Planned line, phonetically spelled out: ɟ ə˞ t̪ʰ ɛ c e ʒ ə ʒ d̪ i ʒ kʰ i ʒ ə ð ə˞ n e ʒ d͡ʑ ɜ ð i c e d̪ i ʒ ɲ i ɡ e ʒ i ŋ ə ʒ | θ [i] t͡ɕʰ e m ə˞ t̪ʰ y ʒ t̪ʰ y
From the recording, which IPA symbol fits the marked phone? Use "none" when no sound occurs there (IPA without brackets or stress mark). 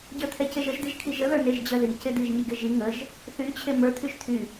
y